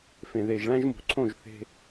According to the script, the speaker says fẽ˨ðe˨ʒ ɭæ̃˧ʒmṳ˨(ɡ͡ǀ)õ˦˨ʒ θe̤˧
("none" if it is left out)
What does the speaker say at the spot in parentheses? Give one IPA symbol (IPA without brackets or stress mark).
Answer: ǀʰ